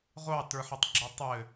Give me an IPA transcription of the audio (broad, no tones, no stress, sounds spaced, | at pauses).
ʁʷ ɑ t ə˞ ħ ɘ tˤ ɡ͡ǁ ə˞ tˤ ɘ